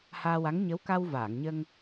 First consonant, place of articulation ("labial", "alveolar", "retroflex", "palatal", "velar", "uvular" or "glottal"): glottal